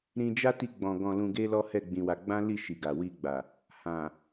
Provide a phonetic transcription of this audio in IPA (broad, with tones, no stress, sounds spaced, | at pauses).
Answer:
ɾ ĩ˧ d͡ʒ a˦ t i˧ ɡ͡b ɔ̃˨ ɡ ɔ̃˨ l ũ˨ ɡ e˧ l ɔ˦ h ɛ˦˨ ɡ͡b ĩ˧ w a˧ ɡ͡b ã˦ l i˦˨ ʃ i˨ ɡ a˨ w i˧ ɡ͡b a˨ | h ã˨